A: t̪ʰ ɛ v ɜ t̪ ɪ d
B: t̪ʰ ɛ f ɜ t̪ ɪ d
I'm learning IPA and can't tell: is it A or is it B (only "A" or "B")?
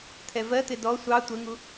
A